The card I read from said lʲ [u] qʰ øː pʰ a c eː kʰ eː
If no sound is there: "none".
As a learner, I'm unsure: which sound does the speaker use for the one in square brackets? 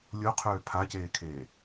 o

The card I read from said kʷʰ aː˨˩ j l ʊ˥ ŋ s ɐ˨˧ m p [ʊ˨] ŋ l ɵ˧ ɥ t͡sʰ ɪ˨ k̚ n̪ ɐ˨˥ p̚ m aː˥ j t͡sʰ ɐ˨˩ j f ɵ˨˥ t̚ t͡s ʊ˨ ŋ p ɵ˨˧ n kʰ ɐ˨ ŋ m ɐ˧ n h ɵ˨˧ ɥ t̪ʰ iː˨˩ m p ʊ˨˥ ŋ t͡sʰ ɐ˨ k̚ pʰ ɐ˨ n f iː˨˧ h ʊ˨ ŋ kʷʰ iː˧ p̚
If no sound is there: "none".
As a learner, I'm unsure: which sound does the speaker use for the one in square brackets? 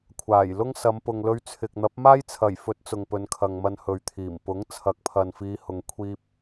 ʊ˨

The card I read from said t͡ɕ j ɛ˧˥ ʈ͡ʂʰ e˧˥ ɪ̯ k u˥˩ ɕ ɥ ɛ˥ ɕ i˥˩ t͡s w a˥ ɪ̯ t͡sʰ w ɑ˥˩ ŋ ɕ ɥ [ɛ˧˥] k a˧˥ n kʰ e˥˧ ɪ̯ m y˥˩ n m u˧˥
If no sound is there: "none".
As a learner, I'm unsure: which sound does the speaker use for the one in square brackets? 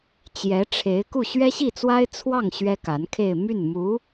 ɛ˥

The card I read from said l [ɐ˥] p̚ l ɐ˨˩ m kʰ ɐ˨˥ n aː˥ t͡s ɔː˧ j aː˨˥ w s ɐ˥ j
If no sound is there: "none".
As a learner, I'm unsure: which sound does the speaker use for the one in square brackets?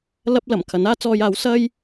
ɐ˥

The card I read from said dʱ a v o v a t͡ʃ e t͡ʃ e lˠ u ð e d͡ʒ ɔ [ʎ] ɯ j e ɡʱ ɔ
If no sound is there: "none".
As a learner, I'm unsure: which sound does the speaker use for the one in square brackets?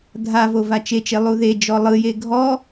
lˠ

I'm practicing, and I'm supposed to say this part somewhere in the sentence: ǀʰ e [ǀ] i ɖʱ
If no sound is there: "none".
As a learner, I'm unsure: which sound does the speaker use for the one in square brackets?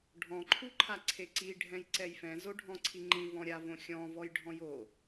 ǀ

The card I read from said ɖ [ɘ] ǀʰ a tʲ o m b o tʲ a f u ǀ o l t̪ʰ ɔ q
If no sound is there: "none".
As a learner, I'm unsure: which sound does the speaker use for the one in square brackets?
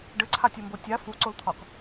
ɘ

